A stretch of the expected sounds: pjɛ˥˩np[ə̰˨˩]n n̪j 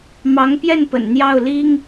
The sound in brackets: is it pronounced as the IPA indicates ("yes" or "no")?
yes